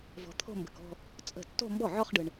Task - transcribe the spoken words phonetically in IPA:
v ɔ̤˨ t̪ʰ o̤˥˧ m b ə̤˨ k ɔ̤˥˧ | t͡sʼ ə̤˥˩ tː o̤˥˧ m b ɔ˥˩ ʕ ɔ˥˧ χ ɖ ɯ˨ ɳ

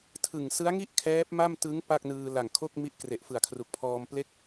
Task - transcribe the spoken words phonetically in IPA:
tʰ ɯ˨˩ ŋ s ɯ˦˥ a̯ ŋ i˥˩ ʔ kʰ ɛː˦˥ p̚ m a˥˩ m t ɯ˦˥ ŋ p a˥˩ k̚ n ɯː˧ l a˨˩ ŋ kʰ o˥˩ k̚ m i˦˥ ʔ k r e˨˩ ʔ f ɯ˨˩ a̯ kʰ r u˨˩ k̚ pʰ ɔː˧ m p l e˥˩ k̚

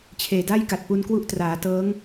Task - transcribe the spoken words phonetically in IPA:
t͡ɕʰ eː˨˩ d a˥˩ j k a˨˩ t̚ p u˧ n k w u˦˥ ʔ t r aː˩˦ t ɤː˦˥ ŋ

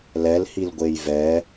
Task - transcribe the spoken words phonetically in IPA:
l ɛ l h i l ɡʷ e j v ɛ

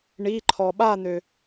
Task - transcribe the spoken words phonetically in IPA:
ɳ i˩˧˩ ǃʰ ɔ˩ ɓ a˥˨ n̪ ø˩

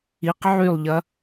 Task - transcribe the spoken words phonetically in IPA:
i q ʕ y lˠ ʎ ɐ

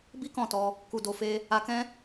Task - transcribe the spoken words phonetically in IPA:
b i˦ k ɔ̃˦˨ t ɔ˧ | k u˧ d o˧ f e˦ | a˧ k ɛ̃˦

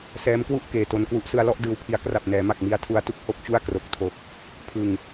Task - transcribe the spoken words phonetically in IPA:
s ɛː˦˥ m k w u˥˩ ʔ k eː˨˩ t o˧ n k w u˥˩ ʔ s ɯ˧ a̯ l ɔ˥˩ ʔ d ɯː˧ w pʰ i˦˥ a̯ k r a˨˩ p̚ n ɛː˩˦ m a˨˩ k̚ m i˦˥ a̯ tʰ u˦˥ a̯ t u˥˩ k̚ h o˥˩ k̚ t͡ɕ u˥˩ a̯ k r o˨˩ k̚ tʰ o˨˩ k̚ | pʰ ɯ˨˩ ŋ

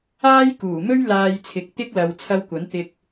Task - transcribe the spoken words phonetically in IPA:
aː˥ j k uː˨˩ m ɵ˥ ɥ l aː˨ j t͡sʰ ɪ˨˥ k̚ t̪ ɪ˥ k̚ l ɐ˨˧ w t͡sʰ ɐ˧ w kʷ ɐ˨˥ n t̪ ɪ˧ k̚

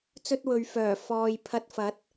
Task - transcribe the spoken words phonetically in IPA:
t͡s ɵ˥ t̚ w ɵ˨˧ ɥ f œː˨˩ f ɔː˨ j pʰ ɐ˧ t̚ f ɐ˨˥ t̚

